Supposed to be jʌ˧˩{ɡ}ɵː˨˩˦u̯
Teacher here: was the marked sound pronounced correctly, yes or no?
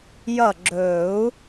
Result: no